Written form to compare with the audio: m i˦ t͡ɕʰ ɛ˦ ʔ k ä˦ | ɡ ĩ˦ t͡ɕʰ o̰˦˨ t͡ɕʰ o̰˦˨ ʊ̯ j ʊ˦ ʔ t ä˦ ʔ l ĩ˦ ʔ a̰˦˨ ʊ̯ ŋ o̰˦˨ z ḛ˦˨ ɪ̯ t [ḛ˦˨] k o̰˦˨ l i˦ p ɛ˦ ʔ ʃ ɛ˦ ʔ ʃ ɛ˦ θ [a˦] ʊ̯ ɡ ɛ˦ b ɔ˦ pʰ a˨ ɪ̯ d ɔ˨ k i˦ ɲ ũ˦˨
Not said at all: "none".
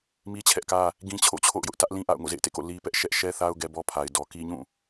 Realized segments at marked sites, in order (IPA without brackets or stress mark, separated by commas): ḛ˦˨, a˦